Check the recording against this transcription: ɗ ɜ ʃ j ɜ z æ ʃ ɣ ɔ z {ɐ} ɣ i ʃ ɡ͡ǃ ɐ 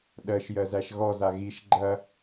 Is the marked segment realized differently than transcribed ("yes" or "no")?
yes